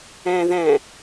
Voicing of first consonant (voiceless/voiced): voiced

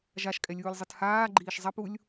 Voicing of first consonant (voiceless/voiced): voiced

